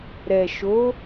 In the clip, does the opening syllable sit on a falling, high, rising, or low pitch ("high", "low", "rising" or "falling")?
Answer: low